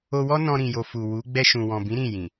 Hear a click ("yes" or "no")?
no